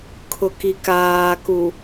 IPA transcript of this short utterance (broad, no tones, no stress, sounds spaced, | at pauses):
kʰ ʊ k i k aː k u